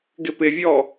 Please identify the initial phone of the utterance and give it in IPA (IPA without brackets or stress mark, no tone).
ɡ